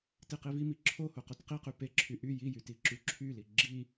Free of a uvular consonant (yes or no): no